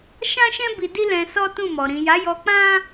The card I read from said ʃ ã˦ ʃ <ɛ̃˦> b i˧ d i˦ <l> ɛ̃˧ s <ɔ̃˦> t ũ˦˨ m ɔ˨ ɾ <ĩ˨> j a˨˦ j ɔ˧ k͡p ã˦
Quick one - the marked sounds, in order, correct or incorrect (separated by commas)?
correct, correct, incorrect, correct